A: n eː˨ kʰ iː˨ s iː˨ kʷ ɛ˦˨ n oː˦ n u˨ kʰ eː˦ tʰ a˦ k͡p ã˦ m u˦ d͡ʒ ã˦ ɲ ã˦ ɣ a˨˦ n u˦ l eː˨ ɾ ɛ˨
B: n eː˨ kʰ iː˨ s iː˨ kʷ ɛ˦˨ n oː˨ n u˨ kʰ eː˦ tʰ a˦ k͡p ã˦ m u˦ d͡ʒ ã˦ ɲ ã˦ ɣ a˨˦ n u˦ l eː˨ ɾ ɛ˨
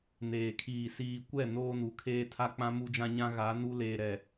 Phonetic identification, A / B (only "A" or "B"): A